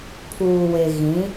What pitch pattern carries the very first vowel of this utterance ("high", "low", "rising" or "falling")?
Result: low